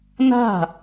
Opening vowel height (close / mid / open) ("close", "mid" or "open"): open